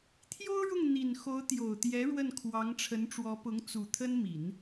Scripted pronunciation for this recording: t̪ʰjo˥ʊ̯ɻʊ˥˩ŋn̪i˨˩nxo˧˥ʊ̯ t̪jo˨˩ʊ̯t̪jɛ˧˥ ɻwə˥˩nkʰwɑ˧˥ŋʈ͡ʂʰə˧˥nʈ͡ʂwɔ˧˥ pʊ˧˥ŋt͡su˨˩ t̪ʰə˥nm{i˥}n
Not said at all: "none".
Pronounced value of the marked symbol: i˨˩˦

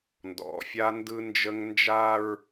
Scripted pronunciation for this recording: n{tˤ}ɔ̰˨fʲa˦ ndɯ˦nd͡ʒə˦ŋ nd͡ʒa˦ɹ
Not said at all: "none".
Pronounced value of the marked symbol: d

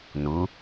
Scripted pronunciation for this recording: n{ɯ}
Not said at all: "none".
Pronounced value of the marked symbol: u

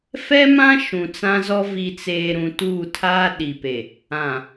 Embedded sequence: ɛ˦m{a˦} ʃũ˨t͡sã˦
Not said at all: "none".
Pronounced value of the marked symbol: ã˦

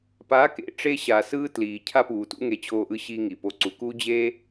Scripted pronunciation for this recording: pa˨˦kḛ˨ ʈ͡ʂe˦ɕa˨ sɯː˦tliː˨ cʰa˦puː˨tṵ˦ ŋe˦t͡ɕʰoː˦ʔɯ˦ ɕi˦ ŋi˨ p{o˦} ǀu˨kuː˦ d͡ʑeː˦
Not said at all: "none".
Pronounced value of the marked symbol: o˦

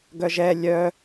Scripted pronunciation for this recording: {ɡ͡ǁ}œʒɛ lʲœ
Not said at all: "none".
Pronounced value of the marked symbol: ɡ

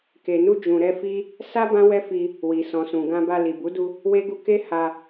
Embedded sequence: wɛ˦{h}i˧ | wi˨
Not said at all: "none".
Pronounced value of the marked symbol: f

